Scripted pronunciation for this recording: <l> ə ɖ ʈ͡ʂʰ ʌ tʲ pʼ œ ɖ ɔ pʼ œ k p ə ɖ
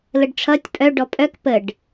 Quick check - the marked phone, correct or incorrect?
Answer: correct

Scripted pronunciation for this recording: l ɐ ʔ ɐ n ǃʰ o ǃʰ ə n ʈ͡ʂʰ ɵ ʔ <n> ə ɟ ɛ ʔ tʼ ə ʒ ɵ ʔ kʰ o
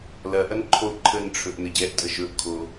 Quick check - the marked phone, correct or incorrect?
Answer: correct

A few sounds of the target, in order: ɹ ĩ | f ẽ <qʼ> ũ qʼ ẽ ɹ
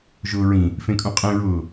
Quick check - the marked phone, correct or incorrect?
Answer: incorrect: kʼ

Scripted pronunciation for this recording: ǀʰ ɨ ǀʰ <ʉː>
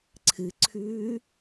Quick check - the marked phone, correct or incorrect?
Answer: correct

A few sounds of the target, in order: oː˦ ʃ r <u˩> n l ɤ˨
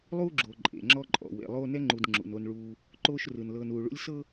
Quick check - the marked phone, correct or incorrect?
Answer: incorrect: ɯ˩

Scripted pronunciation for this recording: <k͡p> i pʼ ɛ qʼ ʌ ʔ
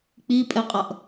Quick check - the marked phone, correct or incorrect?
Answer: correct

